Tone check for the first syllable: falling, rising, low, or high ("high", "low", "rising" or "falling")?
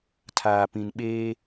low